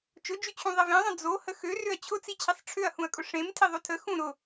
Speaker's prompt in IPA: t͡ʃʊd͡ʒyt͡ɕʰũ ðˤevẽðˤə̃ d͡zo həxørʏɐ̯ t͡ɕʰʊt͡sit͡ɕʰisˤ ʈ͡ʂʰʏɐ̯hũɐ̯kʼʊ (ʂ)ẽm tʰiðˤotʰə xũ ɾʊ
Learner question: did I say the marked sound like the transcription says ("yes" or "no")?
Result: yes